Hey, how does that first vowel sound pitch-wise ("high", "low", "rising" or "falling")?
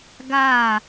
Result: falling